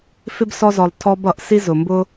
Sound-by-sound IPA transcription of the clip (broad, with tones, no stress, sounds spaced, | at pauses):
f ɪ˥ b s ɔ˦ z ɔ˨ lˠ tʰ ɔ˦ b ʌ˩ ʔ s i˥ z ʊ˩ m b ʊ˥